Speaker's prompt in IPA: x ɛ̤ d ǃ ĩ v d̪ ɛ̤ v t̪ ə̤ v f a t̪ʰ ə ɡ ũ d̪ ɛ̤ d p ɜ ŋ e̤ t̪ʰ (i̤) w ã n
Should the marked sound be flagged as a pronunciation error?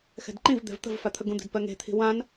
no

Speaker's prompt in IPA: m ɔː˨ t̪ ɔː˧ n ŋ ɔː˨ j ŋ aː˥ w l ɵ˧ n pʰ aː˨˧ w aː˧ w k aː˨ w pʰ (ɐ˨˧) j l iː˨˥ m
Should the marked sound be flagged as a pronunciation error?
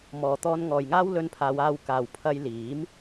yes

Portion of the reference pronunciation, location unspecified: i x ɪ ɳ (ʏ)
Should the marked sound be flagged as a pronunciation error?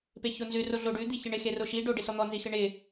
yes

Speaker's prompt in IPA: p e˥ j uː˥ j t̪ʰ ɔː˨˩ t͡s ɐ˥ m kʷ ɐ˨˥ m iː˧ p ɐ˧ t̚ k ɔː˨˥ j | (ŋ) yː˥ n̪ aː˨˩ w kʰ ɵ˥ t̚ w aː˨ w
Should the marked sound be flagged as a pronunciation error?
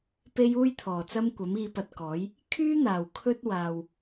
yes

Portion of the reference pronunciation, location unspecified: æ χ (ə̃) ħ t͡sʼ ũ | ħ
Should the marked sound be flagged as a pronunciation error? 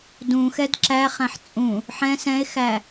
yes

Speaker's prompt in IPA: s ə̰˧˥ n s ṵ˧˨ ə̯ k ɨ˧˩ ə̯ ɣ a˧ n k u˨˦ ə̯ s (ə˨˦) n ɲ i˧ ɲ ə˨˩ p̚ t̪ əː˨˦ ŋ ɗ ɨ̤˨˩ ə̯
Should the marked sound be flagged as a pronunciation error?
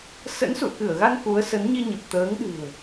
no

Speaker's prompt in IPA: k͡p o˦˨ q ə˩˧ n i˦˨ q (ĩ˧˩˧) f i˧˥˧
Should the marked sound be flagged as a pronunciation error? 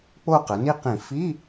no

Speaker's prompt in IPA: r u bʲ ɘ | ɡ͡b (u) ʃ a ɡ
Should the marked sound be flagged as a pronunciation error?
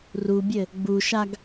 no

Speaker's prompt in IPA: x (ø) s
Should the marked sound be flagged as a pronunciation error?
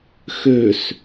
no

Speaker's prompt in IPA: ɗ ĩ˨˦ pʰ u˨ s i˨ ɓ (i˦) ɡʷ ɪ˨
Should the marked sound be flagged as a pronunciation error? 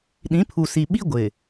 no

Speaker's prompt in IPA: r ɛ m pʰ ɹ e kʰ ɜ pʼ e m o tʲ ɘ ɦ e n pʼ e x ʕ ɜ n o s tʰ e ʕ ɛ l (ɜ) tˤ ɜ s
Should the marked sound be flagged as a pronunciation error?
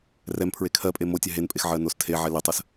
yes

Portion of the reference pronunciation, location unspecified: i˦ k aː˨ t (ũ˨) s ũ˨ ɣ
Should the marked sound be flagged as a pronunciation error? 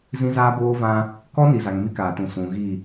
no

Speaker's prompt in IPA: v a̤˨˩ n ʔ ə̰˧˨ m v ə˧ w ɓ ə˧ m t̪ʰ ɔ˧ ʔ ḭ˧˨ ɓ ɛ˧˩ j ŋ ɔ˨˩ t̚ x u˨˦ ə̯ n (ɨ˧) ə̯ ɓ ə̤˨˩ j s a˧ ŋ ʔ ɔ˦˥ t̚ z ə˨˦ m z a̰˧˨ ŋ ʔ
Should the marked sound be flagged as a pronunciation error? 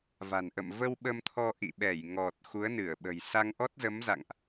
yes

